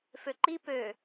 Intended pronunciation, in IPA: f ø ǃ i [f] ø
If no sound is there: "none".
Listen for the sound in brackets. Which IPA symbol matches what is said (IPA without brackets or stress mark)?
p